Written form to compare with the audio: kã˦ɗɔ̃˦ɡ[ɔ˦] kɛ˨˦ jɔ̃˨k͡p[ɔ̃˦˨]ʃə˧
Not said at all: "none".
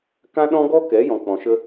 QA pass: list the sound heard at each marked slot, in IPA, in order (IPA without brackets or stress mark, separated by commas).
ɔ˦, ɔ̃˨